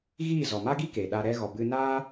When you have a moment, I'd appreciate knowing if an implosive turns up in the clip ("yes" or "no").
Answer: yes